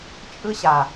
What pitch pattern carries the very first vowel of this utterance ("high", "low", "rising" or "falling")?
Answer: high